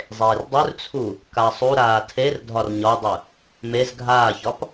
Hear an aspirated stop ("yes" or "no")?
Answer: yes